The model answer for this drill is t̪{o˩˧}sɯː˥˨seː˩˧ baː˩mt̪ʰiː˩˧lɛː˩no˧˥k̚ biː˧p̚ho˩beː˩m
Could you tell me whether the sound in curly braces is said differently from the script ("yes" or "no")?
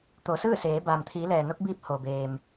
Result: no